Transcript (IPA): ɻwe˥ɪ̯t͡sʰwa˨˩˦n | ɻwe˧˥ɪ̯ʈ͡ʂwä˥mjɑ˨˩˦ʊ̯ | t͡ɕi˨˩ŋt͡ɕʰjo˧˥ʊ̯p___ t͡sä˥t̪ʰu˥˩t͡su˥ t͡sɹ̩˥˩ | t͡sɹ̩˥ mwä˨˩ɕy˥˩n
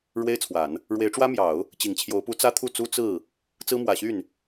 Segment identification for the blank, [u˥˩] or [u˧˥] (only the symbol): u˧˥